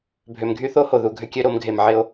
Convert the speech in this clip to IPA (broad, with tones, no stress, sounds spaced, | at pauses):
bʱ ø˨ m ɡʱ y˦ θ o˦ h o˨ ð u˨ ɡʱ ʏ˦ kʲ ø˦ ɾ o˨˦ m ɡʱ e˨ m ʕ ɪ˦ o̯